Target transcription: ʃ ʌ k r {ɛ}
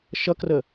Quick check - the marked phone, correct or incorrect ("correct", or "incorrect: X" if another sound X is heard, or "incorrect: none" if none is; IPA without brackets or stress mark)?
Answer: incorrect: ə